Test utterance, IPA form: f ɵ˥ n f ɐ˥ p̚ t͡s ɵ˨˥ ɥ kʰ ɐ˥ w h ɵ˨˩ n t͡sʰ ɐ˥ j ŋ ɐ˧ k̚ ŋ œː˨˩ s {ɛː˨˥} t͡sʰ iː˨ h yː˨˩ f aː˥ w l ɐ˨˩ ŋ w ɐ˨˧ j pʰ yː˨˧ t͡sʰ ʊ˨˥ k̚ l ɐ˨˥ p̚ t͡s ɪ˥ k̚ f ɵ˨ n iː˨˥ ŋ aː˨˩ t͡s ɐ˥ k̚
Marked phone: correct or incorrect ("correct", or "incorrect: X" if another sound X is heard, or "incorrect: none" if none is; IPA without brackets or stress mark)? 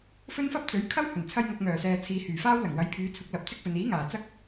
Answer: incorrect: ɛː˨